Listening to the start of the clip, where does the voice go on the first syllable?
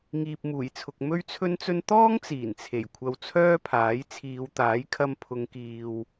low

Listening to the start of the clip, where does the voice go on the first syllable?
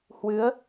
rising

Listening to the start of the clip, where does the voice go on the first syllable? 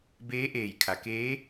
rising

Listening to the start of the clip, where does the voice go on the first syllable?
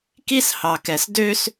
high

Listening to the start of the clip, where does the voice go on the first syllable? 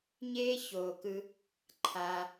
high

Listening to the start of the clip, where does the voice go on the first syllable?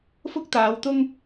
high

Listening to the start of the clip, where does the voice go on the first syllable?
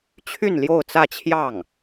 falling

